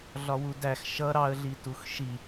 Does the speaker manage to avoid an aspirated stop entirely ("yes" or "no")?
yes